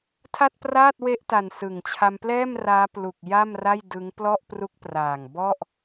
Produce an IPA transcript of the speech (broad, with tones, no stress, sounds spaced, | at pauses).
tʰ a˥˩ t̚ p r aː˥˩ t̚ w e˦˥ ʔ t a˨˩ n s ɯ˨˩ ŋ t͡ɕʰ a˧ m p l ɛː˥˩ m r aː˦˥ p l u˨˩ k̚ j a˥˩ m r a˥˩ j d ɯ˦˥ ŋ p l ɔ˥˩ ʔ p r u˦˥ k̚ p r aː˨˩ ŋ b ɔ˥˩ ʔ